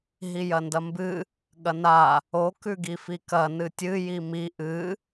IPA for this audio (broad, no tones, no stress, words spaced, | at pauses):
ɦijɐndɐmbɨ | ɠɐna | o kʉɡifikɐ nɨtʲɨ jimi ʔɨ